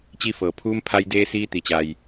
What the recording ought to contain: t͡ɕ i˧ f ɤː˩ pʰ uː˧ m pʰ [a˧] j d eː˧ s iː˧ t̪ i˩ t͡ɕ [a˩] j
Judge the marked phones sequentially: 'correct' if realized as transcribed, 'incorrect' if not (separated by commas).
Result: correct, correct